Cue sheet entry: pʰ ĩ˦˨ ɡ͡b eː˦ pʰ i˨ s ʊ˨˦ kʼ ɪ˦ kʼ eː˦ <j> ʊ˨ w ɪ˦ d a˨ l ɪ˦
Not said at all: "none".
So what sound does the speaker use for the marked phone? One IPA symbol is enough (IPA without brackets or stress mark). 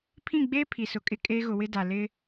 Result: ɣ